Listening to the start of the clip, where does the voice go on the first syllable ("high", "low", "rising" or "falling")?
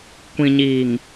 low